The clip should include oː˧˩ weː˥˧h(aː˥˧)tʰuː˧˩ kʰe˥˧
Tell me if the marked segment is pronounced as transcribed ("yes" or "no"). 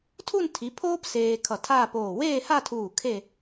no